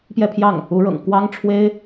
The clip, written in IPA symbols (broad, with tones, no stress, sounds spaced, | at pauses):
p j ɛ˥˧ pʰ j ɑ˥˩ ŋ | u˧˥ ɻ ɤ̰˨˩ ŋ k w ɑ˥ ŋ ʈ͡ʂʰ w e˥ ɪ̯